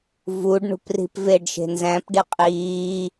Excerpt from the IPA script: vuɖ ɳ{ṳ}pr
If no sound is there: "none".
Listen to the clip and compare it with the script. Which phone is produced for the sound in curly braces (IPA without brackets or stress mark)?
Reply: ṳ